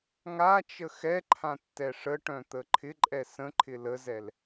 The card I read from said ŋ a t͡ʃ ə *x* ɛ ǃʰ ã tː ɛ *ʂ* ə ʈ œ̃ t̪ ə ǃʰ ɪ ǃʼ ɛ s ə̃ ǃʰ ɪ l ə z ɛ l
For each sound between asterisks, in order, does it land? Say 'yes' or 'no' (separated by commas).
yes, yes